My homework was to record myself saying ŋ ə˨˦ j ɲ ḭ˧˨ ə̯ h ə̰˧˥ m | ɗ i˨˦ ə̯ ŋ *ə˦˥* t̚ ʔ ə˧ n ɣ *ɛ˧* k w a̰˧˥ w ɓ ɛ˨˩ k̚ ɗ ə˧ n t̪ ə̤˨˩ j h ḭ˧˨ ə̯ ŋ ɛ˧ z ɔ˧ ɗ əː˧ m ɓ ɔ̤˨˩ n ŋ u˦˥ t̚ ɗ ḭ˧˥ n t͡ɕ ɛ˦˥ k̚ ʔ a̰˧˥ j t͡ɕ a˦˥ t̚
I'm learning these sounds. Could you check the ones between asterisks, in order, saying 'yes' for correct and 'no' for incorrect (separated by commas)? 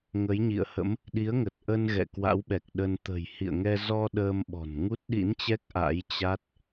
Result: no, no